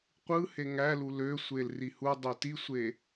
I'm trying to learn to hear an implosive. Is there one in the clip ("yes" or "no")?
no